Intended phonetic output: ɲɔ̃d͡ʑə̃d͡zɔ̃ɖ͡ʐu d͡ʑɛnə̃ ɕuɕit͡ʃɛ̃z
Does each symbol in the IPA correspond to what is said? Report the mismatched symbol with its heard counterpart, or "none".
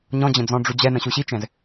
none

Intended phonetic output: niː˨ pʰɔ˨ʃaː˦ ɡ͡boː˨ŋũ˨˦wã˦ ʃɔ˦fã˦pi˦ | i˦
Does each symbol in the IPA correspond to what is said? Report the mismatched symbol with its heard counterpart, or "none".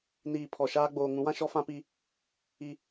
none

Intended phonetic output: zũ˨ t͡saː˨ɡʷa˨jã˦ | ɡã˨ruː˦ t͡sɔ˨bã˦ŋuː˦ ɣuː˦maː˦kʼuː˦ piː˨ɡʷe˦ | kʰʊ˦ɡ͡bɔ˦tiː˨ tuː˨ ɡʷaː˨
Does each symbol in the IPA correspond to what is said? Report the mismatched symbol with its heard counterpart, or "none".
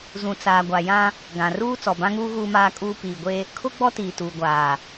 none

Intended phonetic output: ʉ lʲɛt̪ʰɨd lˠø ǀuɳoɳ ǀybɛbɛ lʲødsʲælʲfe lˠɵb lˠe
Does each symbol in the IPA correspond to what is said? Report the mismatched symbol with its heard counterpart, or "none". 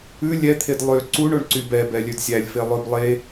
ɨ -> e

